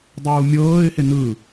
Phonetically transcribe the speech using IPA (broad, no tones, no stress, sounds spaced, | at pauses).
dˤ uː mʲ ɤː ɪ̯ h e n ɯ